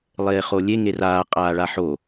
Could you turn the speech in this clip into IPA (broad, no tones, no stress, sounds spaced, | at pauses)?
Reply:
lˠ eː χ o lʲ e ŋ e r aː qʼ aː ɭ a ħ o